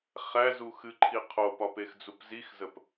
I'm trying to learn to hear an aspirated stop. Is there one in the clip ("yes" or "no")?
yes